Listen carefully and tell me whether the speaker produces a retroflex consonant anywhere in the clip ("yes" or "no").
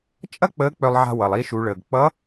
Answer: yes